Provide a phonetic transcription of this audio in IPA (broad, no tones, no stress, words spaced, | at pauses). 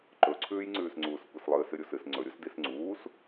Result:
ǃɵǀʰʉːjŋ͡ǀʉːsŋ͡ǀuːs kʷeslˠɨːsɨ ɾʲusɨs ŋ͡ǀɵɾʲus disŋ͡ǀuːs